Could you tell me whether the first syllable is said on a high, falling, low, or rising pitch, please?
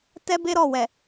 high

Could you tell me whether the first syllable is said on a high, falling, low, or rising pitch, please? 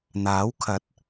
rising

